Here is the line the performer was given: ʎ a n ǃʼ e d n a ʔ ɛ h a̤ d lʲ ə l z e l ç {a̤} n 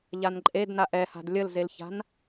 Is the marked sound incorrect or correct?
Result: correct